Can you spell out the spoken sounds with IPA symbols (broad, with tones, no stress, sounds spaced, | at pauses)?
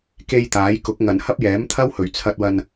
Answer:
k e˧ j t̪ aː˨˥ j k ʊ˨˥ k̚ ŋ ɐ˨˩ n h ɐ˥ p̚ j ɛː˨˥ m t̪ʰ ɐ˥ w h ɵ˨˩ ɥ t͡sʰ ɐ˧ t̚ w ɐ˧ n